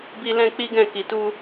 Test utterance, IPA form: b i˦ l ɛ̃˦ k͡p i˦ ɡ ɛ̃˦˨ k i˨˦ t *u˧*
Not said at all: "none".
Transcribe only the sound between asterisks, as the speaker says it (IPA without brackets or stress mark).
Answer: u˦